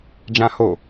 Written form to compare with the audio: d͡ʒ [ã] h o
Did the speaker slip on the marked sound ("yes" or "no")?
no